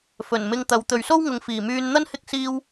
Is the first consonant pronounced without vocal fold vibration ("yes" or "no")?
yes